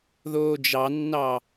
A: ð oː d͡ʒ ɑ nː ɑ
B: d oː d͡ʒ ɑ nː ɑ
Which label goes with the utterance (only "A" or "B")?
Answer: A